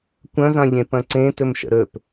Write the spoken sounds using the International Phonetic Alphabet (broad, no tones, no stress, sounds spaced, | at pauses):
kʷ ɐ̃ z ã ʎ ẽ p ɐ̃ ǀ ẽ t ɵ m ʃ ə̰ ɾ ɵ p